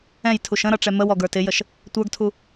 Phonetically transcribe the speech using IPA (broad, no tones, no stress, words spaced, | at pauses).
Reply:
ɛ̃jtʰuʃ ə̃ɾʌ ʈ͡ʂɛməwɔ ɡə˞tɪjəʃ | tʷə˞ɡtʰu